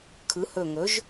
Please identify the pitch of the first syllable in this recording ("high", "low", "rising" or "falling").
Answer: rising